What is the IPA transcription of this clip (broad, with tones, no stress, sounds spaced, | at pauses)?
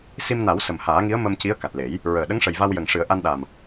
s i˧ m n a˨˩˦ w s ə˨˩ m h aː˨˩˦ ŋ i˧˥ ə̯ m ə˧ m c i˧˥ ə̯ k a˨˩ t̚ l e˨˩˦ j | ɹ əː˨˩ ɗ ə˧˥ ŋ ʂ ə˨˩ j v a˧ w j ə˨˩ ŋ ʂ ɨ˨˩˦ ə̯ ʔ a˧ n ɗ a˨˩ m